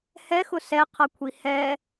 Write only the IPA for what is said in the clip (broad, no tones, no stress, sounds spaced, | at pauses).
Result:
h ɛ x ʊ s ɛ qʰ ʌ kʷʰ i h ɛ